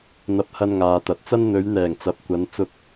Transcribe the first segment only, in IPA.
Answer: n̪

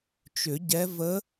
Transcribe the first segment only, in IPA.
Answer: t͡ʃ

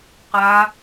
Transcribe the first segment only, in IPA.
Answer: q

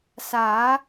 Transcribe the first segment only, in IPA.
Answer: s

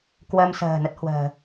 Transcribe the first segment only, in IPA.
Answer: k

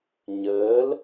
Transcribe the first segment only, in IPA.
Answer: ɲ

